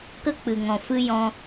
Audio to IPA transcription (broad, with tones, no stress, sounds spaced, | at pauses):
k ə˦ k͡p ɨ˨ ŋ ɔ̃˨ f ɨ˦ j ɔ̃˦